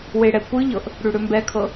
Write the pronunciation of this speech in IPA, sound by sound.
w e ɽ ɛ kʷ ɨ ʎ ɤ ʔ | ɽ ʉ ɽ ø m b ɛ kʰ ɤ

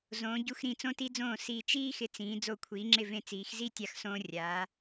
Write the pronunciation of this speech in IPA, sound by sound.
z õː˩˧ ɟ u˧ x ɾ ĩ˧˩ t͡s õ˧ t i˧ d͡z õː˧˩ s i˧˩ t͡ʃ iː˥ x ɪ˧ t͡s ĩː˩˧ d͡z o˧˩ kʷʰ iː˩˧ ŋ͡ǁ ɪ˧˩ v ẽ˧˩ t͡s iː˩˧ x z i˥˧ tʲ a˧ x s õː˧ rʲ aː˩˧

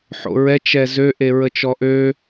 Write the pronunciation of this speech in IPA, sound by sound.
ħ o̰ ɹ ɛ t͡ʃ ɛ z ø ʔ e ɹ ə t͡ʃ ɔ ʔ ø

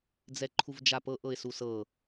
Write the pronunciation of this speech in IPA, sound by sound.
d͡z ɛ ǃʰ u v d͡ʒ a p ɤ ʔ ɤ ɪ̯ s u s ɤ

